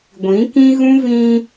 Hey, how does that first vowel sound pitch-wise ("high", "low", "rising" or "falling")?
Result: rising